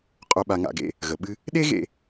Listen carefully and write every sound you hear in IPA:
qʼ o˨ ɓ a˨ ŋ a̰˨ ɡ ḛ˦˨ | ɣ ə˨ ɓ ɨ˦ | ɗ e˦ ɣ ḛ˧

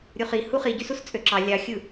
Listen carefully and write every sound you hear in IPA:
ɾʲ u χ i h u χ i ɟ y s u s t͡sʼ ø ǁ ɑ lʲ ɑ xʲ ɯ

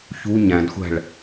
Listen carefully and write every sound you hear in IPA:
ç u ɲ æ̃ d xʷ æ̤ ɭ

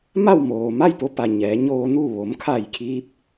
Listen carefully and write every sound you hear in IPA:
m a˥˨ w m oː˩ m a˥˨ j t̪ o˧ p a˩ ɲ ɛː˩˧ ɲ oː˧ n uː˥˨ ʋ o˩˧ m kʰ a˧˩ j kʰ iː˧ p̚

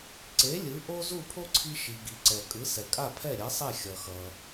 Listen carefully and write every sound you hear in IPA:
ǀ e˩˥ lʲ ɯ˩˥ ʔ o˥ z u˥˩ pʰ o˥ ǀʰ i˧ ʃ i˩ ɡ i˩ ǀ ɛ˩ kʼ ɯ˩˥ s ɛ˩ kʼ a˥˩ pʰ ɛ˥˩ ɾʲ ɛ˩˥ sˤ ɛ˥˩ xʲ ʌ˩ x ʌ˩

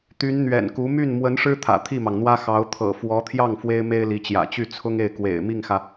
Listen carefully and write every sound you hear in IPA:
t̪ y˧˥ n n̪ ɥ ɛ̰˨˩ n k u˧˥ m y˥˩ n m w ə˧˥ n ʂ ɻ̩˥ t̪ʰ ä̰˨˩ t̪ʰ i˥˩ m ɑ˩ ŋ n̪ w ä˥ x ɑ˧˥ ʊ̯ t̪ʰ ɤ̰˨˩ f w ɔ˧˥ t̪ʰ j ɑ˥˩ ŋ f w e˥ ɪ̯ m e˥ ɪ̯ l i˧˥ t͡ɕ j ä̰˨˩ t͡ɕ y˥˩ t͡sʰ ʊ˥ ŋ e˥˩ ɪ̯ k w ḛ˨˩ ɪ̯ m i˥˩ ŋ x ä˩

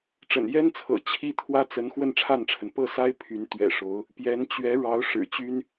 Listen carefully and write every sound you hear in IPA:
ʈ͡ʂ ə̰˨˩ n j ɛ˥ n t͡sʰ ɤ̰˨˩ t͡ɕʰ i˥ t̪ʰ w ä˥ t͡s ə˧˥ n x w ə˥˧ n ʈ͡ʂʰ a˥˩ n ʈ͡ʂʰ ə˩ n p ɤ˥˩ s a˥ ɪ̯ pʰ y˧˥ n t̪ ɥ ɛ̰˨˩ ʂ o˧˥ ʊ̯ | p j ɛ˧˥ n t͡ɕ ɥ ɛ˧˥ ɻ ɑ˧˥ ʊ̯ ʂ ɻ̩˨˩ t͡ɕ y˥ n

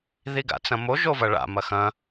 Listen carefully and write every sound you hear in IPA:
ð i ɡ a̰ t͡s ɐ̃ m o ʒ o v ɐ ɭ a̰ m ɐ x ɐ̃

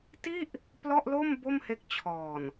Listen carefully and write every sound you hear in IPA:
t i˥˩ ʔ | p l ɔ˥˩ ʔ l o˥˩ m b o˥˩ m h e˦˥ k̚ t͡ɕʰ ɔː˨˩ n

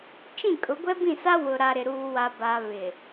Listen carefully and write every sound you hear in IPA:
t͡ʃ ĩ˦˨ kʼ ʊ˨˦ ɡʷ ɛ˦ b ĩ˦˨ s a˦ w ʊ˨ ɾ a˨ ɾ ɪ˨ ɾ uː˨ w a˨ b a˨ β ɪ˨

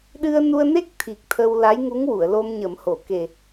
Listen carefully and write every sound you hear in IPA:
ɗ ɨ˧ ə̯ n u˧ ə̯ n e˦˥ k̚ t̪ʰ i˨˩ k̚ t̪ʰ ə˧ w l a˧˥ j ŋ u˧˥ ŋ w u˨˩˨ ə̯ l o˧ m ɲ ə˨˩˦ m h o˨˩˨ k e˨˩

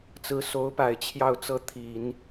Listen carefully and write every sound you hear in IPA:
t͡s ɹ̩˧˥ s o˧˥ ʊ̯ p a˨˩ ɪ̯ t͡ɕʰ j ɑ˥˩ ʊ̯ t͡s ɤ˥ t̪ʰ i˨˩˦ n

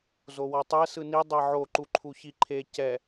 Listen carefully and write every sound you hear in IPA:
z o w ɔ tˤ ɛ s ɯ n i dˤ ɛ ʕ o ǃ u ǃʰ u ç i ǃʰ e c ɛ

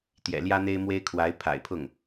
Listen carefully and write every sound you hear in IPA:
t̪ j ɛ̰˨˩ l j ä˥ n̪ e˥ ɪ̯ m w e˥ ɪ̯ kʰ w a˧˥ ɪ̯ pʰ a̰˨˩ ɪ̯ pʰ ʊ˥˩ ŋ

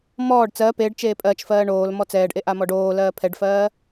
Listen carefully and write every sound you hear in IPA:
m ɔː ɖ t͡s ɜ p e ɖ t͡ʃ eː pʼ ɜ t͡ʃ f ɜː ɳ oː l m ɔ t͡s ɛː ɖ ʔ e ʔ a m ɔ ɖ oː l ɜː pʰ ɛ ɖ f ɜː

